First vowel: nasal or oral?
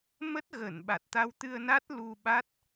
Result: oral